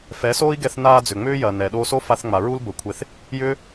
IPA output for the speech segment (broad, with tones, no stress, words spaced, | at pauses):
fɛ˨˦soː˦i̯ɡɛ˧θ naː˧ d͡zʏ˨ŋ͡mʏː˦jɐː˨ nɛ˨ ɗoː˧so˦fa˧θŋ͡ma˨ ɹu˦lbə˨˦kʷʰe˧θ | jʏː˦